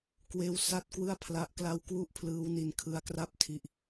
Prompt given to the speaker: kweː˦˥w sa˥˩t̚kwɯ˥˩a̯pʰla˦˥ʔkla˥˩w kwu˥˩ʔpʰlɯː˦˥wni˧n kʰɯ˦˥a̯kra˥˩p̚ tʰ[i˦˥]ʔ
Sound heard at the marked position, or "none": i˦˥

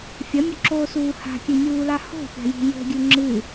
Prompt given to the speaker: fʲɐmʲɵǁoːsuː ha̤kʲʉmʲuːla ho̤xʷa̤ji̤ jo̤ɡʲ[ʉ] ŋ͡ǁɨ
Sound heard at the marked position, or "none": ʉ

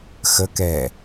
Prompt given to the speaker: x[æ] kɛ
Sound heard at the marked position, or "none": ə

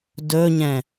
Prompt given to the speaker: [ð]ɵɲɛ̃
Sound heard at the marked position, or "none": d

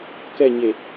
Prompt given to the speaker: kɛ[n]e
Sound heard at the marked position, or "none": ɲ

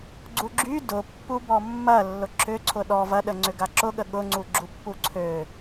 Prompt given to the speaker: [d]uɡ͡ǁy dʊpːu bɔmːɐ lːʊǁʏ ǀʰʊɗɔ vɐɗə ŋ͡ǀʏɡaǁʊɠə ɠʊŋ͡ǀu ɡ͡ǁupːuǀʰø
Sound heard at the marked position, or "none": ɡ͡ǀ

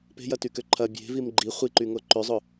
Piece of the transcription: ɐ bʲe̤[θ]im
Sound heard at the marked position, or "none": v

